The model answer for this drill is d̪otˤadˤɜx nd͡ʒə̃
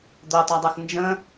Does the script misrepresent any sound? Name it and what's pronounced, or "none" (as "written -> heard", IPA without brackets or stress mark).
none